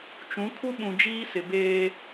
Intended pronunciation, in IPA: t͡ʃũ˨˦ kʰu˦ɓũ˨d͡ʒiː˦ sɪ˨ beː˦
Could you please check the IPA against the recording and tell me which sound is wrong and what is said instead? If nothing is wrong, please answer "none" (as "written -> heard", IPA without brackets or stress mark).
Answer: none